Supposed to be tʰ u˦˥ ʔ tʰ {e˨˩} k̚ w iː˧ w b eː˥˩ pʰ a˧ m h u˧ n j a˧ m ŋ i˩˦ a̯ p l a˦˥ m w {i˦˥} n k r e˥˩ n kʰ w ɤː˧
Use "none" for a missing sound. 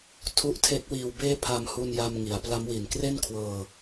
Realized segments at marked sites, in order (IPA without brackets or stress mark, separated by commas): e˦˥, i˨˩